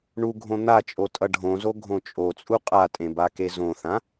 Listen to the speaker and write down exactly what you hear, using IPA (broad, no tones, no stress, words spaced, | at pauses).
ɳuɡʱõ n̪at͡ʃʼo tʼʌɖʱõzo ɡʱõt͡ʃʼot͡sʼu qʼatʼẽ bakezõθã